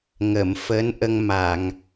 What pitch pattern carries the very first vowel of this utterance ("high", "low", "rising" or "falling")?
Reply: low